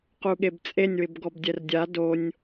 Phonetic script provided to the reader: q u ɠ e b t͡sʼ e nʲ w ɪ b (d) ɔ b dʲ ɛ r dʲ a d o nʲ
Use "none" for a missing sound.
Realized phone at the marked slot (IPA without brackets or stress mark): ɡ